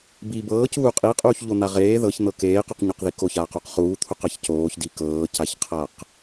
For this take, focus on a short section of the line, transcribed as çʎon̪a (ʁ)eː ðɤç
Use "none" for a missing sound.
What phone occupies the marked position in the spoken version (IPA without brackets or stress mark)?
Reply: ʁ